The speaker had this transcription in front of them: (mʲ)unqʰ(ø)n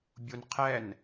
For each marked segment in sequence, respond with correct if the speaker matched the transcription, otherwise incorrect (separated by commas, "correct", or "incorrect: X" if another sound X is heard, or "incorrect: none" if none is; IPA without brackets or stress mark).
incorrect: bʲ, incorrect: ɛ